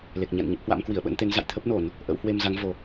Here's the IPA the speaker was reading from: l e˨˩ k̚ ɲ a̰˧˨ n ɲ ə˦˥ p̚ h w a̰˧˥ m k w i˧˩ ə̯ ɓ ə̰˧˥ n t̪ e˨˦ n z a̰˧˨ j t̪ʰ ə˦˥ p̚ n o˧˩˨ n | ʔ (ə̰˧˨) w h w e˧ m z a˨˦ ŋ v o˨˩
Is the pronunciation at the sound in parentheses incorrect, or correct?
incorrect